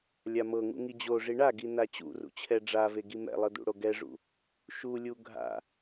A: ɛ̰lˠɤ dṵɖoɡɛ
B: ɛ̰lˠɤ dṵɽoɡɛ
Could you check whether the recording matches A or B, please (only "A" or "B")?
B